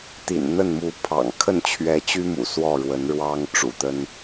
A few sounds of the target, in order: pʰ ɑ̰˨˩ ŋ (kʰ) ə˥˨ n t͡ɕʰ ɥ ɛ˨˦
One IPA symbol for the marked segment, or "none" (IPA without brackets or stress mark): kʰ